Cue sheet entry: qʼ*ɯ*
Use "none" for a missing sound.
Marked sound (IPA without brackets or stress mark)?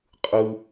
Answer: ɯ